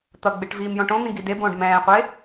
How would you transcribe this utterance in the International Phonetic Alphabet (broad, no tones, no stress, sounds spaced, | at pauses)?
t̪ ʌ ɡ͡b e ʈ v iː m j õ ʈ õ n̪ ĩ ɡ i d e b õː ɖ m ɛ̃ː qʷ e